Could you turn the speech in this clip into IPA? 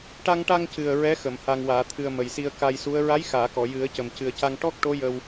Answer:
ʈa˧ŋʈa˧ŋcɨ˨˩ə̯ ɹɛ˧˥xə˨˩˨m ha˨˩ŋwaː˨˩˨t̪ʰɨ˨˩ə̯ mə˨˩jsi˧ə̯ka˧jsu˧˥ə̯ ɹa˧˥jxaː˨˩˨ kɔ˨˩˨jɨ˨˩˦ə̯cə˨˩m cɨ˨˩ə̯ca˧ŋ ʈɔ˦˥k̚ʈo˧˥ jə˧w

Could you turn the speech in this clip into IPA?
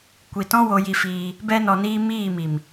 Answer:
kʷi˨tɔ̃˦ wo˧ji˧fiː˧ | bɛ˧nɔ˨niː˧ miː˦˨ mi˨m

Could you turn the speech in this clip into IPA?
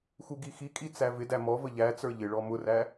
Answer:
xuɡixikʼi t͡sævɪdæ mɔvə ʎæt͡sə˞ ʎɪ ɭɔmʊræ

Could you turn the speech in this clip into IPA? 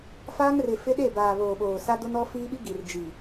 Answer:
faː˦ŋrɪ˨ fɪ˦ɗe˦˨baː˨ βoː˨ɓoː˨sa˦do˦n ɔ˦fiː˦ɓi˦ ɡi˨rd͡ʒi˨

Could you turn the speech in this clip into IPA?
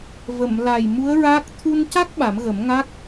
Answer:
və˨˩˨mla˨˩j mu˧˥ə̯ɹa˦˥k̚ t̪ʰu˧nca˦˥k̚ ɓa˨˩˦mɣə˨˩˦mŋa˦˥k̚

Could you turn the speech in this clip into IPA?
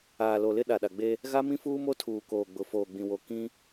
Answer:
aː˨lo˨lɪ˦ ɗa˨ɗa˨ɡ͡be˦ | ɣa˦mĩ˦fuː˦mo˦ tʰuː˨koː˨ɡ͡bʊ˨ foː˨ɡ͡bĩ˨wo˨ kĩ˦

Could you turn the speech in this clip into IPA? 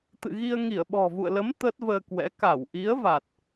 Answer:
t̪ɨ̰˧˨ɣi˧ə̯ ŋi˧˩ə̯ɓɔ̤˨˩vṵ˧˨ə̯lə˨˦m t̪əː˦˥t̚vəː˧kwɛ̰˧˥ ka˧˩w ʔi˨˦ə̯va˨˩t̚

